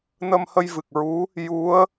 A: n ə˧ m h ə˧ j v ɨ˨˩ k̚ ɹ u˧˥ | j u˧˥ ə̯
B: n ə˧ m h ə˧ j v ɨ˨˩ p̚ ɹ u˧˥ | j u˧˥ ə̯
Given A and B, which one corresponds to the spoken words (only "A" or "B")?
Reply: A